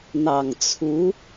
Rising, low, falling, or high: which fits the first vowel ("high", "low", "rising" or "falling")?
low